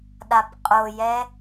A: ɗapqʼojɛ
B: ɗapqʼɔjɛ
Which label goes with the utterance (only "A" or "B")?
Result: A